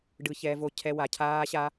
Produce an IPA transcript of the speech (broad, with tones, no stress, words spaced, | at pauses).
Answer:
ɖɯ˦ çɛː˦vo˦ cʰɛ˦ wa˧cʰaː˦ɕa˦